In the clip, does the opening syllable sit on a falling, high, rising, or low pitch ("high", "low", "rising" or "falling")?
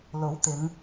rising